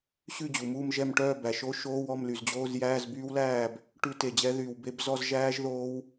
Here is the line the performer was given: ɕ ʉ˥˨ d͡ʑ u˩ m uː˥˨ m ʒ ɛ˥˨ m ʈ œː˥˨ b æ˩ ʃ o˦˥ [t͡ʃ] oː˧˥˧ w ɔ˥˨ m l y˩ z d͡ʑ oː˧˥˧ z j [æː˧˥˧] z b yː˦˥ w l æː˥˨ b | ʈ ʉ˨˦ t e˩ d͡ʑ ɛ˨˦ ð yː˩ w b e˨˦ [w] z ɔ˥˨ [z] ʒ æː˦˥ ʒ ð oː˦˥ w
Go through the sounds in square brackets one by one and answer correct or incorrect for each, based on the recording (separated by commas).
incorrect, correct, incorrect, correct